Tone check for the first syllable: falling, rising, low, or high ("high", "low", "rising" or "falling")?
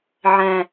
low